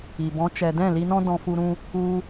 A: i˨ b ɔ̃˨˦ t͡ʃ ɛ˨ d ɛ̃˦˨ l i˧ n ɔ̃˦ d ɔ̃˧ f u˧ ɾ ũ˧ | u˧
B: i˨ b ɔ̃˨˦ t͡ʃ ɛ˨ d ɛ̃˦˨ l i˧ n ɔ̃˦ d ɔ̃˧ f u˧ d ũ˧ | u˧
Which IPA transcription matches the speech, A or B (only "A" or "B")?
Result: A